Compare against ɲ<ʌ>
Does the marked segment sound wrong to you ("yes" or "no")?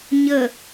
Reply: yes